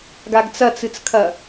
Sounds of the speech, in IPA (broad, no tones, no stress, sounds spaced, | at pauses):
ɡ a ɡ t͡s ɐ t͡s ɨ t͡s kʰ ɐ